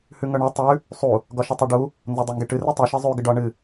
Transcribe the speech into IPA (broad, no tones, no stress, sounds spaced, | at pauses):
h ʉ ŋ œ ɳ œ tˤ ʉ | sˤ u | ɡ ɒ ʃ ə tˤ ʉ ɖ u | n z ɒ dˤ e ŋ ɡ e ʈ ɨ r ʉ tˤ u ʃ e zˤ ʉ ɡ ə ɖ ɒ ɳ ɨ